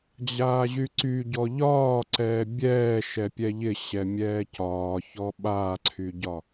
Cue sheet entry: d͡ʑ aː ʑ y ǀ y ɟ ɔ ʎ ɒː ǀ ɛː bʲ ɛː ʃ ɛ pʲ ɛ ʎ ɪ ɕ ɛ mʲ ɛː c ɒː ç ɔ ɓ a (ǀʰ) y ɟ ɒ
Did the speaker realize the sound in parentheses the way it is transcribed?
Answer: yes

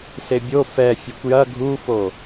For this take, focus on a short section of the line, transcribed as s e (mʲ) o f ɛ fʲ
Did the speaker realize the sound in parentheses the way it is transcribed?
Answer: no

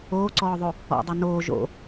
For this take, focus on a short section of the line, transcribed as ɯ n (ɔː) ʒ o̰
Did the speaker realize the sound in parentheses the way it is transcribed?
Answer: no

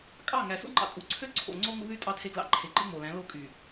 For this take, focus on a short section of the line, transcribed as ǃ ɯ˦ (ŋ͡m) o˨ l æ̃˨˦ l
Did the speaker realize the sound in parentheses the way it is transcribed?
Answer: yes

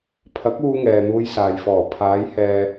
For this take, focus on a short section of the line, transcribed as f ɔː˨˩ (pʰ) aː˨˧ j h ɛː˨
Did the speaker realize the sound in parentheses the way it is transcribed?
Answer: yes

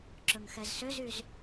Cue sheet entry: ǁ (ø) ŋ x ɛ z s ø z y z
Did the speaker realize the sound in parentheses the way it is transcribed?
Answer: no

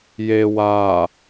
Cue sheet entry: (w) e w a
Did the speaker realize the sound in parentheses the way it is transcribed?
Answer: no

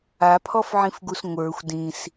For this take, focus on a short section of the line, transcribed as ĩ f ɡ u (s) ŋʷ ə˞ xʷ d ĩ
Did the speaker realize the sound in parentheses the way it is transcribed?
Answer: yes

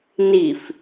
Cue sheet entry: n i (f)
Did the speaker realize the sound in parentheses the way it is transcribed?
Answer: yes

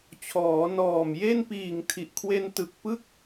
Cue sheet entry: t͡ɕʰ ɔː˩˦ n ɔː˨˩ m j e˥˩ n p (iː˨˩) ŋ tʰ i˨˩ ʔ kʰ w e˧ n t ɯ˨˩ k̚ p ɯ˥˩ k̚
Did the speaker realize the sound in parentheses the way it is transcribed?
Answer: yes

